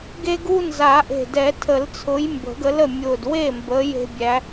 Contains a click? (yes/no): no